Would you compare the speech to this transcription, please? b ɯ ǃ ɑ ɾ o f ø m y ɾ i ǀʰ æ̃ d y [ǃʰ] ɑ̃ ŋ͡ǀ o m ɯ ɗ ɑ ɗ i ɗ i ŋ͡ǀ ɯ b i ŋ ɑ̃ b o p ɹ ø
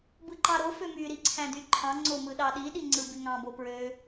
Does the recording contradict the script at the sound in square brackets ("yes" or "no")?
no